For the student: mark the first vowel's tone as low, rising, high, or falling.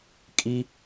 high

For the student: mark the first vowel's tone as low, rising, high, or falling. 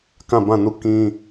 falling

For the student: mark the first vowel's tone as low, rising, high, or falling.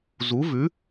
rising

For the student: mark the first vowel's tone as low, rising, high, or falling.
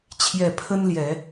low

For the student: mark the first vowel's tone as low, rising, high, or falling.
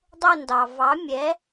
falling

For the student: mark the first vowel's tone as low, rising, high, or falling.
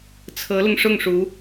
rising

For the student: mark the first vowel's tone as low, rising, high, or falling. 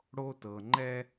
high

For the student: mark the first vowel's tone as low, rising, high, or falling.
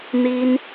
high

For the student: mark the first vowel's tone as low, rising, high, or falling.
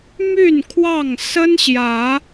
falling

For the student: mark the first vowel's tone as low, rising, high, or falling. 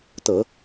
low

